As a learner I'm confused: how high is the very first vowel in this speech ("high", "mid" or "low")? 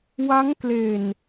low